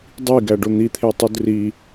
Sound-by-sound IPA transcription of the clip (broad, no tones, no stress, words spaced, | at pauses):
dˤiɡæɖo n̪it̪ʰetˤud ri